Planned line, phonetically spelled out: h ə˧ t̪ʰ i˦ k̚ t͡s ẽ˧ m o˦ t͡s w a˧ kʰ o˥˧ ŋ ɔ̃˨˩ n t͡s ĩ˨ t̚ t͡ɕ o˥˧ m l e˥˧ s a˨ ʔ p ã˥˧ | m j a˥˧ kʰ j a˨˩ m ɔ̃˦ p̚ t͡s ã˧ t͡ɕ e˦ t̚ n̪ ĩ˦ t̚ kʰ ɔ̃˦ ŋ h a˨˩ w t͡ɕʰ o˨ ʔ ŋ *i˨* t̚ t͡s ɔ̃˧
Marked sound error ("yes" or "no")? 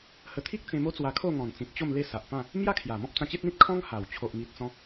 no